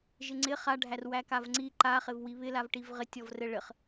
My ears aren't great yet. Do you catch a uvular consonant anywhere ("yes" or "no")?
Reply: yes